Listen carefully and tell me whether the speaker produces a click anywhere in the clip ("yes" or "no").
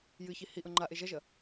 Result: yes